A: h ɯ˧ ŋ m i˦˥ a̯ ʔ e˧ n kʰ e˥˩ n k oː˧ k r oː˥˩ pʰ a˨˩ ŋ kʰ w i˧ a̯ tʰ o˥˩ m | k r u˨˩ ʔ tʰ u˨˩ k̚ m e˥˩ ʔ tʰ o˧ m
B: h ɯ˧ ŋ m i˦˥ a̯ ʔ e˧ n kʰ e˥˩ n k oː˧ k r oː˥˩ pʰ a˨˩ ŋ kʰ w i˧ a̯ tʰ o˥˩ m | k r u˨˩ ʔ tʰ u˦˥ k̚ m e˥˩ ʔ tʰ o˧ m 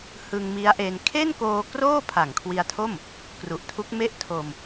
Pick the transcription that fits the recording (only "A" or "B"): B